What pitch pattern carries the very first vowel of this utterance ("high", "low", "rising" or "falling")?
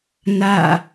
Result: falling